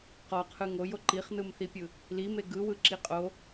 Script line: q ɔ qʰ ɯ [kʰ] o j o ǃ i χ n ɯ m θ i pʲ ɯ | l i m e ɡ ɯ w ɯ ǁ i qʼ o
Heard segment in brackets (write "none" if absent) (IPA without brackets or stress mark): ŋ